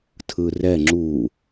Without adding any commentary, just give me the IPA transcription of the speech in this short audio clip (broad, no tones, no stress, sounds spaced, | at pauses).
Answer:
tʰ ɯ r ɛ ŋ͡ǁ u